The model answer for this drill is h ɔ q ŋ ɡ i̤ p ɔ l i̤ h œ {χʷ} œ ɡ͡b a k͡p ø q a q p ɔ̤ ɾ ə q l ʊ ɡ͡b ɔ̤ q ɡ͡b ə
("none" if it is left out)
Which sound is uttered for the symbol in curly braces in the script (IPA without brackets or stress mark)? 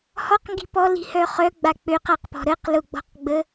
χ